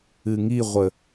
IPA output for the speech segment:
ɨ ŋ i ʁʷ ə

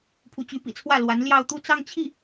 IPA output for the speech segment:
pʰ u˧˥ t͡ɕ y˧˥ p ḭ˨˩ t͡sʰ w ä˥˩ l w a˧˥ n l j ɑ˥˧ ʊ̯ t̪ u˥˧ t͡s ɑ˥˧ ŋ t͡ɕʰ i˥˩

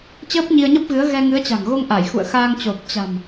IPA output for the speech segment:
t͡ɕ əː˦˥ p̚ ɲ i˧ ə̯ ɲ ə˦˥ p̚ ɣ ɨ˨˦ ə̯ ɣ ɛ˧ ŋ ɨ˨˦ ə̯ t͡ɕ a̤˨˩ ŋ ɣ o˧ ŋ ʔ a˧˩ j x ṵ˧˨ ə̯ x aː˧ ŋ t͡ɕ o˨˩ p̚ t͡ɕ a̤˨˩ m

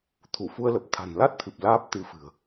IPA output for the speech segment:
t̪ʰ u˧˩ f u˧ ə̯ l ə˨˩ p̚ t̪ʰ a̤˨˩ n l a˦˥ t̚ t̪ʰ ɨ˨˩ p̚ l aː˦˥ p̚ t̪ ɨ˧ f ɨ̤˨˩ ə̯

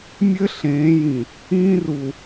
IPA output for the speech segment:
mʲ ɘ˦ ɬ ẽː˨˦ j ĩ˨ | ĩː˦ r u˨

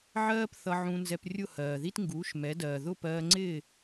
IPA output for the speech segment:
ʕ ɜː˥ p θ ʌ˧ ʕ ũ˧ n z ɛ˧ p rʲ ʊ˥˩ h ɜː˩ ð i˥ t ŋ ɡ uː˩˥ ʃ m ɛ˩˥ d ɜː˩ ð ʊ˥˩ p ɜː˧ ŋ͡ǀ ɪː˥˩

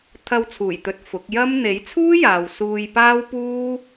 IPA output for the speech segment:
t̪ʰ ɐ˧ w t͡sʰ uː˨˩ j t̪ ɵ˨ t̚ f ʊ˨˥ k̚ j ɐ˥ m n̪ e˨˥ j t͡sʰ uː˥ j aː˨ w s uː˧ j p aː˥ w p uː˥

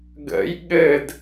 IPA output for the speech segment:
ɡ ə̰ j ɠ ɘ d

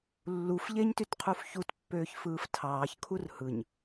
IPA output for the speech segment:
lː u f ʎ e ɲ t y t qʰ u f ç u t pː øː ç f ɯː f tʰ ɑː ç kʰ u r h ɯ ɲ

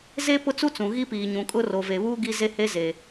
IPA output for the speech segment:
z e˦ p ʊ˦ t͡s u˦ t͡s ũ˨ ɣ i˦ p iː˨ ɲ ũ˨ kʼ ʊ˦ r o˨ v e˨ β uː˦ ɡ i˦ z e˦ h e˦ z e˨

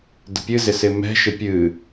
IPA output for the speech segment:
d ə̤ pʲ ɨ z ɪ s ɪ m ɛ̤ ʃ ɪ pʲ ɨ

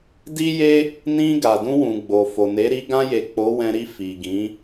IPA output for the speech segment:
d i˦ j e˦ | n ĩ˧ ɡ a˨ d ũ˧ w ũ˨ ɡ͡b o˨ f o˨ n e˨˦ ɾ i˧ ɡ ã˧ j e˨ k͡p o˨˦ w ɛ̃˧ ɾ i˧ f i˨ ɡ ĩ˨˦

